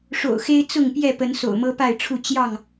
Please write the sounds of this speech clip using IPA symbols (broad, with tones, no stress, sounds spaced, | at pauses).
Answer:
ʂ o̰˨˩ ʊ̯ x e˦ ɪ̯ t͡s ʊ˥˨ ŋ p j ɛ˥˨ p ə˨˦ n s o̰˨˩ ʊ̯ m ɤ˦ p a˥˨ ɪ̯ ʈ͡ʂʰ u˥˨ t͡ɕ j ɑ˥˨ ŋ